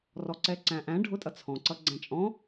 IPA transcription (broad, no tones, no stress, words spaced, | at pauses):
rɔǀɛǀæ̃ʔæ̃ ɖʱʊtʼʌ t͡sʰɔ̃ǀʌ ɡ͡ǀæ̃t͡ʃʼɔ̃